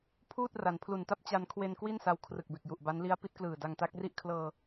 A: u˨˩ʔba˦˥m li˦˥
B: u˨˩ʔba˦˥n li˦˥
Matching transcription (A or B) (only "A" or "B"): B